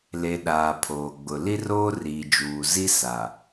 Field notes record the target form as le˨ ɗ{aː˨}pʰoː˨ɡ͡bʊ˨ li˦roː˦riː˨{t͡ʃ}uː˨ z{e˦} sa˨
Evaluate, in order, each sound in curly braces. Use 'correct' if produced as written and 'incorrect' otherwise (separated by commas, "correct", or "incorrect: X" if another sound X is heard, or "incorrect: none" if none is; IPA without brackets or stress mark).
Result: correct, incorrect: d͡ʒ, incorrect: i˦